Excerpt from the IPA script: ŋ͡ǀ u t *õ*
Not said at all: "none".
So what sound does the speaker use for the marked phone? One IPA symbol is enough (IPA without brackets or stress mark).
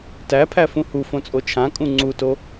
o